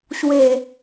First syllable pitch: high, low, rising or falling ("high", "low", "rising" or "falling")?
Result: low